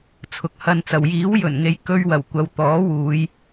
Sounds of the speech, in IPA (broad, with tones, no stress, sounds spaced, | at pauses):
t͡sʰ ʊ˨˥ k̚ h ɐ˧ n t͡s ɐ˨ w j iː˨˥ w j ɵ˨˩ n ŋ e˨˧ j k ɵ˥ ɥ w ɐ˨˩ w kʷ ɐ˨ w t̪ ɔː˨˥ w uː˨˧ j